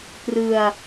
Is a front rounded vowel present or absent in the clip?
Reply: absent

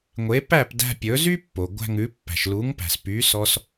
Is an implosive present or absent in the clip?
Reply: absent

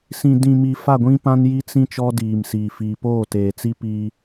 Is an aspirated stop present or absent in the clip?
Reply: absent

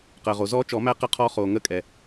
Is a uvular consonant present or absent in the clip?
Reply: present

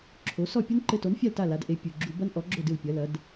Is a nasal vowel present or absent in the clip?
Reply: absent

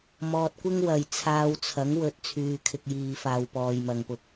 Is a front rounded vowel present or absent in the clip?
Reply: present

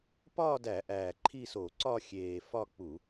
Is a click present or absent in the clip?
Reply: present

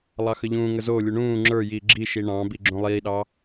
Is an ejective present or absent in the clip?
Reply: absent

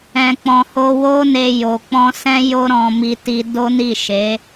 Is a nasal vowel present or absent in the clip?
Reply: present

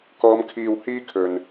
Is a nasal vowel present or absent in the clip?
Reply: absent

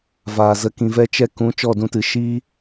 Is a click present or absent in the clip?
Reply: absent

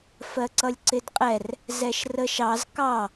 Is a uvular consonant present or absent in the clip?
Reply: present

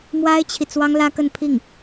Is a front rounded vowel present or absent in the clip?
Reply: absent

